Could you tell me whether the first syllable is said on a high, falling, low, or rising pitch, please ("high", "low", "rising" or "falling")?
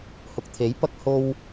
low